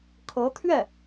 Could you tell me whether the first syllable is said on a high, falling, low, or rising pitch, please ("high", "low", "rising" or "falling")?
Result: rising